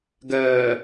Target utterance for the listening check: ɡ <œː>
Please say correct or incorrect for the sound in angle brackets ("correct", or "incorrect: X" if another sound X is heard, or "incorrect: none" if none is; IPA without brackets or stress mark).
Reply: correct